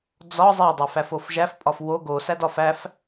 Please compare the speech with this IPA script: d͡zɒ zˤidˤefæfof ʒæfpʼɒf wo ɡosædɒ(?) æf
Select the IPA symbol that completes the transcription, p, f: f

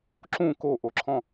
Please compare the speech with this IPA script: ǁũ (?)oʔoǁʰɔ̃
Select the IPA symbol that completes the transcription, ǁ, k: k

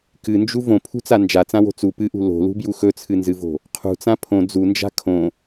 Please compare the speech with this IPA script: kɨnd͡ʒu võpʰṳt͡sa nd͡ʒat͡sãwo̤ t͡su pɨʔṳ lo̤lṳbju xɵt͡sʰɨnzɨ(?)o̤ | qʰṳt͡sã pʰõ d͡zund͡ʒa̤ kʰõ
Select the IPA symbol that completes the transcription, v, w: v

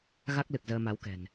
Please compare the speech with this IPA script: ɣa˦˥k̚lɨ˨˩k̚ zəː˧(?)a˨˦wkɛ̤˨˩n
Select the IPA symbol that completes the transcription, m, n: m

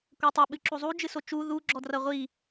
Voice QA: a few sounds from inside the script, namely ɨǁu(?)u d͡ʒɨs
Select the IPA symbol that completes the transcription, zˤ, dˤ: zˤ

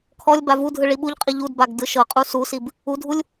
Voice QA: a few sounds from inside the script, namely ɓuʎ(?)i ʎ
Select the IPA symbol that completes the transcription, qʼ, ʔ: qʼ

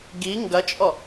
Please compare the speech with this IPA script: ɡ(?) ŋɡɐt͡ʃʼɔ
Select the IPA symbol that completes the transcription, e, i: i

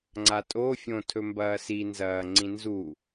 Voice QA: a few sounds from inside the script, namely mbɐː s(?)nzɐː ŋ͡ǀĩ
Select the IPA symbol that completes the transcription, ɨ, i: i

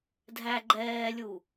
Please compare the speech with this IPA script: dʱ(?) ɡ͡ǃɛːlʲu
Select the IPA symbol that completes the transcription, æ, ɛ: æ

